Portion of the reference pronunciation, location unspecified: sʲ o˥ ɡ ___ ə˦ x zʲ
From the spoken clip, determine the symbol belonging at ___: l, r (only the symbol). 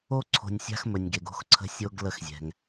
l